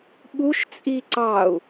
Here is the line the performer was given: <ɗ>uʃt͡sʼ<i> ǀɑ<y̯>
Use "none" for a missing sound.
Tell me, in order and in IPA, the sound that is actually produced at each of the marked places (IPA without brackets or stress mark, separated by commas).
ɓ, i, u̯